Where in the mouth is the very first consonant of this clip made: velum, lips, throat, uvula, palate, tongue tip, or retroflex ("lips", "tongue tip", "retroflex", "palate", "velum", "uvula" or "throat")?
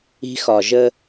velum